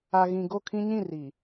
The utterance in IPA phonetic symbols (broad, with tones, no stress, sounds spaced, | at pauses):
a˨ ɣ ĩ˨ ɡ o˦˨ kʰ ĩ˦ ɲ ĩ˦˨ r i˨